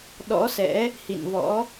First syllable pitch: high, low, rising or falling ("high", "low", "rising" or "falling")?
rising